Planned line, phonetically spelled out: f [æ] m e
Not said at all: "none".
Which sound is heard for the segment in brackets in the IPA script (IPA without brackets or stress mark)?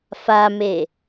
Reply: a